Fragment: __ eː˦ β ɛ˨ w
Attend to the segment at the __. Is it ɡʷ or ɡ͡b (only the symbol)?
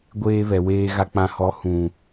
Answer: ɡʷ